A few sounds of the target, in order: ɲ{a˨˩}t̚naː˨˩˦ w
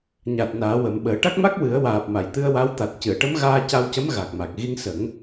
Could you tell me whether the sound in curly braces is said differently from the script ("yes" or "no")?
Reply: no